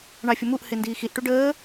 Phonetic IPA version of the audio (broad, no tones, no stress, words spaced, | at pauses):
ɳɑfʲʊmuʔ hɪndiːxiʔ ʈuɖəː